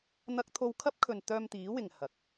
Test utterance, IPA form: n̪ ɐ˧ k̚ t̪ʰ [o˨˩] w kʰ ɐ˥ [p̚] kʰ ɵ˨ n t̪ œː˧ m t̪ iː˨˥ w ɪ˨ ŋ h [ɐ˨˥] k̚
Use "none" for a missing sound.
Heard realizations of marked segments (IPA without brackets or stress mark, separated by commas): o˧, p̚, ɐ˨˥